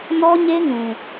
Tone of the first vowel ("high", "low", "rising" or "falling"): high